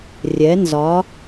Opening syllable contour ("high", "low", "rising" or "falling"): rising